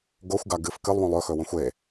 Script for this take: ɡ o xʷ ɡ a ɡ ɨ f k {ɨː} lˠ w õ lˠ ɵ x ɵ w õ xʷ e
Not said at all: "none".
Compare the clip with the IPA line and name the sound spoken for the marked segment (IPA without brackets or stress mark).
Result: ɨ